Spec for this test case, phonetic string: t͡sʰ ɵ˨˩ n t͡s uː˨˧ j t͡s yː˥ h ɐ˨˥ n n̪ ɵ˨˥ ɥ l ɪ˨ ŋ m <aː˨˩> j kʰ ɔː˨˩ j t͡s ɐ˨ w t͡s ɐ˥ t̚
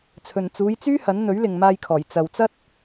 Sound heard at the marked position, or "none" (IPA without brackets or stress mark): aː˧